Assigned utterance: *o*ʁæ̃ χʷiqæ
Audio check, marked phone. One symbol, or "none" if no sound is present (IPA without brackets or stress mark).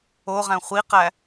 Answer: o